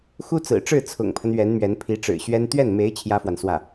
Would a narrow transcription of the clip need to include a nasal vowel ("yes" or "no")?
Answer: no